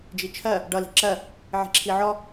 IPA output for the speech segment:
d͡ʒ i t͡ʃʰ ɜ | ɖ ʌ l i̤ ǁ ɜ | ʕ i̤ ǁʰ i ʕ ɔ

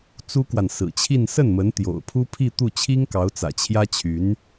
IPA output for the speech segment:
t͡s u˥ k w a˨ n s ɹ̩˨˩ t͡ɕʰ i˥˧ n s ə˥˩ n m ə˧˥ n t̪ j o̰˨˩ ʊ̯ pʰ u˥ pʰ i˥˧ t̪ u˥˩ t͡ɕʰ i˥ ŋ k ɑ˧˥ ʊ̯ t͡s ä̰˨˩ t͡ɕʰ j ä˥ t͡ɕʰ y˧˥ n

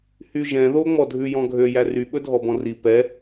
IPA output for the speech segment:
h y ʒ ɛ̃ ð o ŋ͡m ɔ dʱ ʉ j ɔ̃ ɡʱ ø j æ r y ɓ ɵ dʱ ɔ b ɔ̃ r i p ɛ

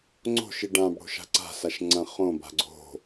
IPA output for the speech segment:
ŋ͡ǀ o̤ ʃ i ɖ ã b ɽ o̤ ʃ a̤ ǀ a̤ s a ʃ ŋ͡ǀ ɐ̃ χ õ b a̤ ɡ͡ǀ o̤

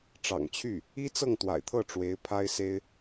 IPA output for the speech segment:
ʈ͡ʂ ɑ̰˨˩ ŋ t͡ɕʰ y˥˩ | i˥ t͡s ɤ˥˩ ŋ t̪ w a̰˨˩ ɪ̯ t̪ʰ ɤ˥˩ ʈ͡ʂ w e˧˥ ɪ̯ pʰ a˥ ɪ̯ s e˥ ɪ̯

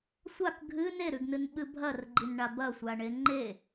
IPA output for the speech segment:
sʷ a k ɡʱ ɨ n e ɾ ʉ ɡ n ɨ n ɓ ɨ bʱ ɐ r ɡ͡ǃ i n ɳ a b ɐ sʷ a ɳ e ŋ͡ǃ e

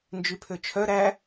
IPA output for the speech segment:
n d͡ʒ y pʰ ø t͡ʃʰ œ ɾ æ

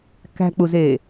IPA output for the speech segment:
k æ̤ k͡p u z eː

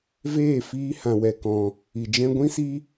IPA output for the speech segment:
v eː˦˨ f iː˧ h ã˨ w ɛ˨ k ɔ̃˨ | i˨ d͡ʒ ɛ̃˦ ɡʷ ĩ˦ s i˦

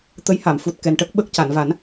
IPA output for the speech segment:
t̪ ə˧˥ j h a˨˩˨ m f u˨˩ t̚ k ɛ˨˩ n ʈ ə˦˥ k̚ ɓ ə˦˥ k̚ c a˨˩˨ n v a˨˩˦ n

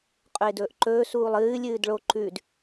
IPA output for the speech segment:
qʼ ɵ ɪ̯ d ɵː ʔ ǃ ɵː s uː lˠ ɨː lʲ ɨː d ɭ o ǃ ʉ d

